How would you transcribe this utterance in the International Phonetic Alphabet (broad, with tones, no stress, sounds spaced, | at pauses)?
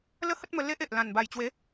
l ə˦ h ə˦ t̚ m ə˧ l e˦ ʔ e˨ ʔ l ã˨˩ n b a˨˩ j t͡ɕ w e˨˦